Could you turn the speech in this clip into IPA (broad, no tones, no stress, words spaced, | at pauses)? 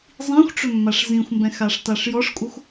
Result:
zˤĩxʷʈ͡ʂʏmːaʂ zĩxʷmbɛ̃xaʂ taʂjɔʂkʷʼʌxʷ